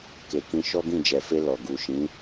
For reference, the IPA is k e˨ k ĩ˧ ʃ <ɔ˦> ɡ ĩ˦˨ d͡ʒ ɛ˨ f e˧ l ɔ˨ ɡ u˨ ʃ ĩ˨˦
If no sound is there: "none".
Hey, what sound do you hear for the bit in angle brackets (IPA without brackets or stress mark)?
ɔ˦